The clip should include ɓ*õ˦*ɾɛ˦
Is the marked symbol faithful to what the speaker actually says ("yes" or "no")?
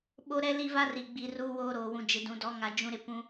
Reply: no